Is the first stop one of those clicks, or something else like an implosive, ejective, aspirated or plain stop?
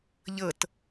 plain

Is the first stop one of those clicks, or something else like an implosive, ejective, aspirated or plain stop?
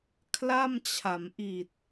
aspirated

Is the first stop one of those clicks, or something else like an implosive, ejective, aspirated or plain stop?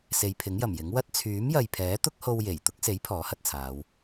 aspirated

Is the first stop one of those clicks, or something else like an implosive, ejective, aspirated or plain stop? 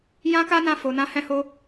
plain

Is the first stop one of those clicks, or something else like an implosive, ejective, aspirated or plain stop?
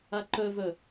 click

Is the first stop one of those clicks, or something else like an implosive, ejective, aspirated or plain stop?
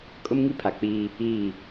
ejective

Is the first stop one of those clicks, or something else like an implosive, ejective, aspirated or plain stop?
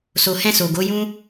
plain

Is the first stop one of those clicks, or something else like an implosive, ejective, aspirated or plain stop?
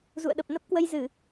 implosive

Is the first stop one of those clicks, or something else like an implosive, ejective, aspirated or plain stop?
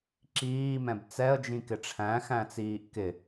click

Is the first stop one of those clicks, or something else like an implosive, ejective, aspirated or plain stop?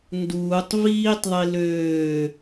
plain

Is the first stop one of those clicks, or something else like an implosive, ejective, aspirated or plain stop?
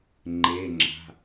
click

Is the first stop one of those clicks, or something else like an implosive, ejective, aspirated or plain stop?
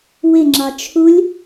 click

